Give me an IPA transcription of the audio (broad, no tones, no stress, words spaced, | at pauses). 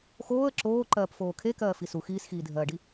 xoːə̯ ǁoː ǃɜːpfoːkʰe kɜːfisu xiːsxiːdʱɜːɖi